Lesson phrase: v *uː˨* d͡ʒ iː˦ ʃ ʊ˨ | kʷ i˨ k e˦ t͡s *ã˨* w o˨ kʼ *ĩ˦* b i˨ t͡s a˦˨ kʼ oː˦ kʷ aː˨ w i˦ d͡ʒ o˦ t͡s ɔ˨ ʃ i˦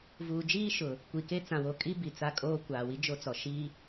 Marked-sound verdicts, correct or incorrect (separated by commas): correct, correct, incorrect